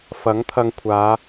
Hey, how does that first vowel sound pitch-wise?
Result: rising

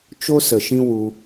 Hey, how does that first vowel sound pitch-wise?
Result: high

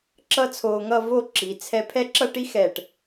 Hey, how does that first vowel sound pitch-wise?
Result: high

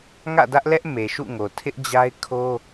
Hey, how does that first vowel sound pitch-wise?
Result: falling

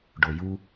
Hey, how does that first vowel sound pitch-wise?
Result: low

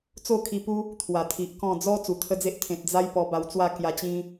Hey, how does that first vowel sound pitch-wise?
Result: falling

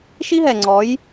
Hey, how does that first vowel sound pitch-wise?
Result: high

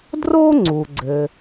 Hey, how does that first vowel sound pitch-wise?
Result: high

